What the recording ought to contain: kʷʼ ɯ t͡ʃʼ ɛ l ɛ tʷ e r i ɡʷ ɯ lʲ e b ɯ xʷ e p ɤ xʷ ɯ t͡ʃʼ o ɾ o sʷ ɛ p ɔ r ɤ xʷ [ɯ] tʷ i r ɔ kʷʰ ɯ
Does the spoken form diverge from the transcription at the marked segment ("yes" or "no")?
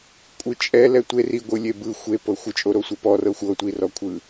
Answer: yes